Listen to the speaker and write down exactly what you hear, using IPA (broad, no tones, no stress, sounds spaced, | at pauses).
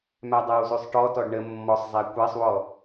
m æ dˤ æ w z ʉ sˤ ʈ ɔ t ɔ ɖ ɳ ə mː ɔ sˤ zˤ æ kʷ æ sˤ w ɔ